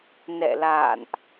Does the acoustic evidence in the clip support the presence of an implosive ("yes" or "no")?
no